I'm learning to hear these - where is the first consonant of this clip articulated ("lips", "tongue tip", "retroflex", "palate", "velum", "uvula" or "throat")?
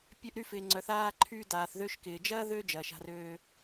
lips